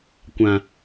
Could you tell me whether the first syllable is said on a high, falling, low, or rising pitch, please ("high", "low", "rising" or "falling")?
low